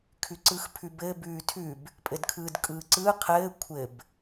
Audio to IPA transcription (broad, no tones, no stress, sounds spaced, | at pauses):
kʰ ʉ ǀ ɯː x pʰ ʉ b ɘː b ʉː tʰ ʉ b | pʼ ɘ d kʰ ɯː d kʼ ɯː ǀ ɯː qʰ ɘː kʷʰ ɘ b